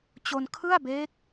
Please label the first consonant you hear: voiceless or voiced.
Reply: voiceless